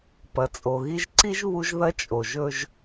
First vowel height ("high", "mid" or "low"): low